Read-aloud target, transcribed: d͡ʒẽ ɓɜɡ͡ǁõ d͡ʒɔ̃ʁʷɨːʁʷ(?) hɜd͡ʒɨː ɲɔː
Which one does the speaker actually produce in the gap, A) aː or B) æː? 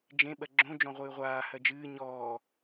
A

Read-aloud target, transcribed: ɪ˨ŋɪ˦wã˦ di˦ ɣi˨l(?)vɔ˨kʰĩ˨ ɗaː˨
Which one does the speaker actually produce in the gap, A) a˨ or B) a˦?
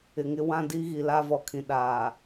B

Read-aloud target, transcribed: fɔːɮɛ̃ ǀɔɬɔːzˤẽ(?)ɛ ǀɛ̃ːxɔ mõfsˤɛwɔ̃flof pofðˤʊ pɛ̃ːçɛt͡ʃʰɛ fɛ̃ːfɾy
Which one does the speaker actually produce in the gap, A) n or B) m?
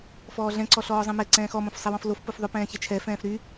B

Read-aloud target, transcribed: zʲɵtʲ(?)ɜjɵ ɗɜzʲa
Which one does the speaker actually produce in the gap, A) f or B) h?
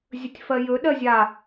A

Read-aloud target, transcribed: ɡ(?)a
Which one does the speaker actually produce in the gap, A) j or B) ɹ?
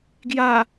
A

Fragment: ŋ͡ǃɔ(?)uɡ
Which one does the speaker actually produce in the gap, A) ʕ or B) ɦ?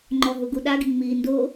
B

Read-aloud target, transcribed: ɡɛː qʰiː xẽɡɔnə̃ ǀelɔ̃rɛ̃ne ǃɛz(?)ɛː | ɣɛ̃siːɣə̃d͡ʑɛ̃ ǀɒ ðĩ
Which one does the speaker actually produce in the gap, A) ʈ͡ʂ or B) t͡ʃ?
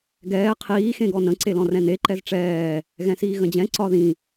A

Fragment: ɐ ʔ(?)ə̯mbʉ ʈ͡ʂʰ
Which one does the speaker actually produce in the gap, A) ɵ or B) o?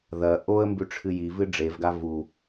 B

